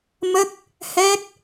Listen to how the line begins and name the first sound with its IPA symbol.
m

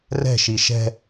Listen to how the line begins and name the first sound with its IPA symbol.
r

